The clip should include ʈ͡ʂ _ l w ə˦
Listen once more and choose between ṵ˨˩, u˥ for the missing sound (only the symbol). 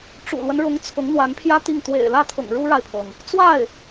ṵ˨˩